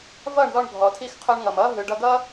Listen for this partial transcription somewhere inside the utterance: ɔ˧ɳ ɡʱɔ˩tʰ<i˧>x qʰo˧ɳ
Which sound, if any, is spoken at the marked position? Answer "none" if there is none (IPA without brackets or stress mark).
i˧